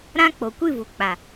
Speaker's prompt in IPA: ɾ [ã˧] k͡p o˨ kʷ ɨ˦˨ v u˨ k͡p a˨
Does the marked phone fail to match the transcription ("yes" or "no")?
yes